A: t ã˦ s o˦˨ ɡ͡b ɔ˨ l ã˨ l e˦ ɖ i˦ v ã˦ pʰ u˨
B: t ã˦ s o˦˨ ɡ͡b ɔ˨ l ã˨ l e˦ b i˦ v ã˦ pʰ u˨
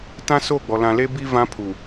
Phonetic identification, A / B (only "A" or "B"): B